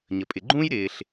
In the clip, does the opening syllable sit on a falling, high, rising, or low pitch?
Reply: low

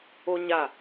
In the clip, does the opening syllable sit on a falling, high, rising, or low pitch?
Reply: high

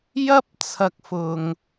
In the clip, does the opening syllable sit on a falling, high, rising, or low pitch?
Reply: high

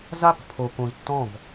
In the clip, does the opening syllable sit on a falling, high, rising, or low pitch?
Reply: high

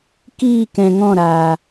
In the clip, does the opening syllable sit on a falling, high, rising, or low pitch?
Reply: falling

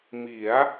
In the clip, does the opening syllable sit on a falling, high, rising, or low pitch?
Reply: rising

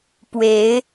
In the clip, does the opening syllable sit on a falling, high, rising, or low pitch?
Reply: rising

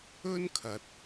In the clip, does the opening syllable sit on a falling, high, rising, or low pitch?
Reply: high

